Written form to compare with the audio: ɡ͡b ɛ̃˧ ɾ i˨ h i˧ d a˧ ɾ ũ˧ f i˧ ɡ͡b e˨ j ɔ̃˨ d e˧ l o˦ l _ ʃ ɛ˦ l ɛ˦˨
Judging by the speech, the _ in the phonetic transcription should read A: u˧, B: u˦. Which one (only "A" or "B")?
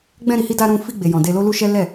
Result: B